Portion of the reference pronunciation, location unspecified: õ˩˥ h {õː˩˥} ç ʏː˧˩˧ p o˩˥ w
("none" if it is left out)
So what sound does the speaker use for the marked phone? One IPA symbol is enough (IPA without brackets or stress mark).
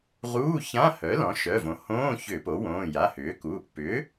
õː˧˥˧